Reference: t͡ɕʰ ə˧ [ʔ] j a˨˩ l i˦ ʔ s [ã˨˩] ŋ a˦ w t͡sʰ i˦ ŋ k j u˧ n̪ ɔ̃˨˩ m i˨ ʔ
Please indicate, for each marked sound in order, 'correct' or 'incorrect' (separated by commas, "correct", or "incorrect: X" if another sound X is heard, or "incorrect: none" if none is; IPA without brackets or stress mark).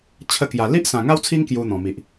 incorrect: k, correct